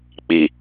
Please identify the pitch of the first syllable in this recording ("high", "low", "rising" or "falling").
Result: low